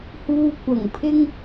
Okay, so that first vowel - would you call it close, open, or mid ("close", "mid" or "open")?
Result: close